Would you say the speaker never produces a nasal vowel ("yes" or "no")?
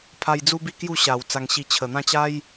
no